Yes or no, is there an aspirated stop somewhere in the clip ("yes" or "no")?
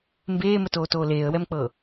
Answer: no